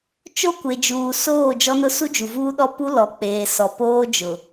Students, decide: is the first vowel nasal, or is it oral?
oral